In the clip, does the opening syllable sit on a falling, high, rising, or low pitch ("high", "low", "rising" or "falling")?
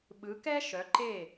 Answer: rising